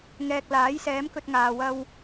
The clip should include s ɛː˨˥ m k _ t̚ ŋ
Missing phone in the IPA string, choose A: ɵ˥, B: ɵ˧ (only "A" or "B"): B